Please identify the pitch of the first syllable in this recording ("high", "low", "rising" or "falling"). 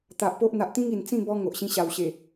low